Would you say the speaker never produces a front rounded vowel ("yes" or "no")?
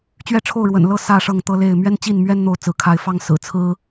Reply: yes